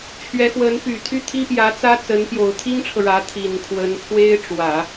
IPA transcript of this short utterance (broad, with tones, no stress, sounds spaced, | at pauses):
t͡ɕʰ ɥ ɛ˧˥ x w ə˧˥ n p y˨˩ t̪ʰ y˥ t̪ʰ i˥ p j ä˧˥ t͡s ä˥ t͡s ə˧˥ n p j o˨˩ ʊ̯ t̪ʰ i˥ ŋ ʈ͡ʂʰ ɤ˨ ɻ ä˧˥ t̪ʰ i˨˩ n kʰ w ə˧˥ n pʰ w e˥ ɪ̯ ʈ͡ʂ w ä˨˩˦